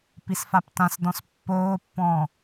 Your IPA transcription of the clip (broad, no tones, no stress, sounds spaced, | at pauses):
p i s f a p t ã s d ɔ̃ s pː oː pː ɔ̃ː